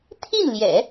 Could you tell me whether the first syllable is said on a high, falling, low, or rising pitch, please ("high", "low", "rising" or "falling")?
falling